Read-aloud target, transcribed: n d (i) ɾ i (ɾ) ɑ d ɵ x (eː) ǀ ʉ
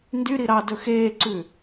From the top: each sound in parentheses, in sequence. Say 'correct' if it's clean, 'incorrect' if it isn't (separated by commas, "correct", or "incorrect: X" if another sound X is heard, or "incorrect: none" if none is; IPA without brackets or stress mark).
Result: incorrect: y, correct, correct